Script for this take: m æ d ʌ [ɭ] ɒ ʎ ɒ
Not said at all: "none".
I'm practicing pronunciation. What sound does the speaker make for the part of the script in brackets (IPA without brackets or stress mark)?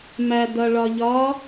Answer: ɭ